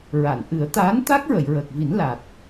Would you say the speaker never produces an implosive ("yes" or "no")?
yes